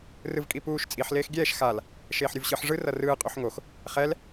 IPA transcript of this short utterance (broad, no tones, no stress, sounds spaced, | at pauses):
r ɯ v kʼ i p uː ʃ t͡sʼ i ħ l eː x ɡʲ ɛː ʃ x a l | ʃ eː ħ ɾʲ u v ɕ ɯ ħ ʐ ɯ r ʌ r ɯː qʼ u ħ ŋ o x | χ ɛ l